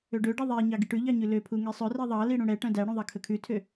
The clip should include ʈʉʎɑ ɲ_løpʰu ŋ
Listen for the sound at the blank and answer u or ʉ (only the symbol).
ʉ